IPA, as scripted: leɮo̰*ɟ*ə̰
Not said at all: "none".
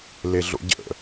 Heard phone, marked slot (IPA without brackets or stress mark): ɟ